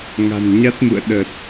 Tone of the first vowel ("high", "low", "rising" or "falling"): low